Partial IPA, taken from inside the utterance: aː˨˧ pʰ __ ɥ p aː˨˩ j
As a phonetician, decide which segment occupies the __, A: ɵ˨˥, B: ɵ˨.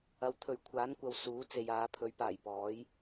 A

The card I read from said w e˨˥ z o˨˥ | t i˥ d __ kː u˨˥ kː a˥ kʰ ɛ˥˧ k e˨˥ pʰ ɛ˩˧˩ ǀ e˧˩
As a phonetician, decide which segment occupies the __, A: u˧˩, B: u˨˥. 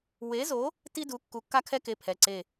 B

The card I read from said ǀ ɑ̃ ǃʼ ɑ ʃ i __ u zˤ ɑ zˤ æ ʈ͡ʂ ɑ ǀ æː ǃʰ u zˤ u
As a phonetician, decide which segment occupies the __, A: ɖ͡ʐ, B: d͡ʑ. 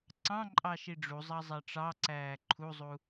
A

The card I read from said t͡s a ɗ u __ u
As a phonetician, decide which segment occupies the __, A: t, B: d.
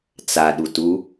A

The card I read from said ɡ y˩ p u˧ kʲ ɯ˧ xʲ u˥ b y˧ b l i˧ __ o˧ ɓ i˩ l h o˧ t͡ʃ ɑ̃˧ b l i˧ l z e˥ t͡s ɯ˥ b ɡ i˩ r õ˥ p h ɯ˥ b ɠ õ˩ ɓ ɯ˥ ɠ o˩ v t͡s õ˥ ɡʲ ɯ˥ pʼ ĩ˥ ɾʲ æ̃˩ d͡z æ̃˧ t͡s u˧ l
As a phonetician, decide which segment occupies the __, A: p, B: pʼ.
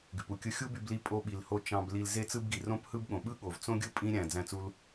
B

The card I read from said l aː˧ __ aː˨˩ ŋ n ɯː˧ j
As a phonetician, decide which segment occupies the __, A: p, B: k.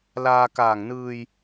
B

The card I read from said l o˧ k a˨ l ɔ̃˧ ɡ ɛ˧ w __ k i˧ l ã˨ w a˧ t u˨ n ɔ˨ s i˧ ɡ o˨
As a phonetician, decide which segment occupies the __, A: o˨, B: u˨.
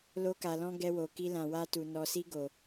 A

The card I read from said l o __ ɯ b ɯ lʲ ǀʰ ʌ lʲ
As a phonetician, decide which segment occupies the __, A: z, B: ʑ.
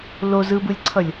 A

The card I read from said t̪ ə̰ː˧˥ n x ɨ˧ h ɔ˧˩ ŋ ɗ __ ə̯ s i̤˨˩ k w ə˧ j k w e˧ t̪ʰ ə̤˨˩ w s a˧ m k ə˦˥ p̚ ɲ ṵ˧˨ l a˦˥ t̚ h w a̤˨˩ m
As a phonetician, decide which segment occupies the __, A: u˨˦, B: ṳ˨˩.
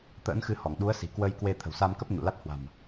A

